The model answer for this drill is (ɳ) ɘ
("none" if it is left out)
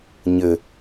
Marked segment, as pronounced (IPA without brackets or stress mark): ɲ